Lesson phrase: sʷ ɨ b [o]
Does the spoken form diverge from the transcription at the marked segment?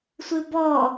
yes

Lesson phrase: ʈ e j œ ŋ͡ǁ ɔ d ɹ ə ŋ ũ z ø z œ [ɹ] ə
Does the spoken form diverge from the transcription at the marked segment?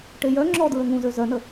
yes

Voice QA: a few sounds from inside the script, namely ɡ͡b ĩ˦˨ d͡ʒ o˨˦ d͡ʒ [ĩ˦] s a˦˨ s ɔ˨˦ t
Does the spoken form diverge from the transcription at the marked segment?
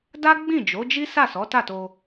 yes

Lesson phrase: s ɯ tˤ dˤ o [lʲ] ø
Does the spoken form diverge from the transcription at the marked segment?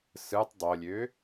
no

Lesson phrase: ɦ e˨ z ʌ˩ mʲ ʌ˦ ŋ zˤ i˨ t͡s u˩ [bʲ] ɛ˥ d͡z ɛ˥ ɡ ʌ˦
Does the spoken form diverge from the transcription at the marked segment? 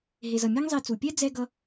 yes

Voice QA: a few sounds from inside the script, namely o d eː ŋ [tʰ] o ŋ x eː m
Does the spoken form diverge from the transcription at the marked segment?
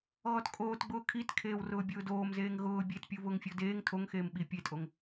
no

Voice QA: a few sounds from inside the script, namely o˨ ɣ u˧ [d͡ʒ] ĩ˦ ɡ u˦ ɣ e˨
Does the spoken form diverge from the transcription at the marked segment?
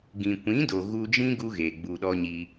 no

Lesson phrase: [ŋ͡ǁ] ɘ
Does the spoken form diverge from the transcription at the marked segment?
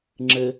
no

